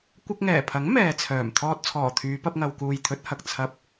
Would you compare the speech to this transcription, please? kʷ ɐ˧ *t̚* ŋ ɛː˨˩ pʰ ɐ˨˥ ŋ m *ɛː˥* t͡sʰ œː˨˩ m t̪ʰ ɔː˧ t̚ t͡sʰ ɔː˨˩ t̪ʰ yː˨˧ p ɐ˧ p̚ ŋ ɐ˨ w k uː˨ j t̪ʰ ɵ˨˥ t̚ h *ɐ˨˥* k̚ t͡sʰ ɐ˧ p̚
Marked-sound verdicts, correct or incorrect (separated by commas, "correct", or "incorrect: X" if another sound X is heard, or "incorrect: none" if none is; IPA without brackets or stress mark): incorrect: k̚, incorrect: ɛː˨, incorrect: ɐ˨